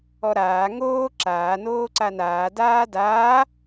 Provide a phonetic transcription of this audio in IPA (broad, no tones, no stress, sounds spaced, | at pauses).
ɔ ɾ aː ŋ oː ǁ aː n oː ǀ a n aː d aː d aː